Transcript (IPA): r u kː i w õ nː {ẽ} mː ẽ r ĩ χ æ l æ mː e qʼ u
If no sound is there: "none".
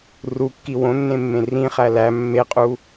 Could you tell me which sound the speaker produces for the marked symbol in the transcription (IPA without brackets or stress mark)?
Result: ẽ